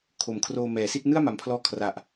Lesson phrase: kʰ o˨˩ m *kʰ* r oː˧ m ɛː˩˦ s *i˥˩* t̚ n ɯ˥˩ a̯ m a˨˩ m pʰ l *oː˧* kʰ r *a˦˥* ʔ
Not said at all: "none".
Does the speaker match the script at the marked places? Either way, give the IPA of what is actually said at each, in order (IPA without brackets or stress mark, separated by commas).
kʰ, i˥˩, ɔː˧, a˨˩